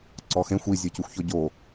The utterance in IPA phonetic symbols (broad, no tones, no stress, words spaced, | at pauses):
ǀɔxẽxʷ i zʲecuxʷçɔɟo